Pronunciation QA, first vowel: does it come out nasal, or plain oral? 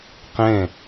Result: nasal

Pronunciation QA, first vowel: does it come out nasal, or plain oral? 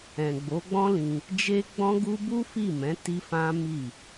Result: nasal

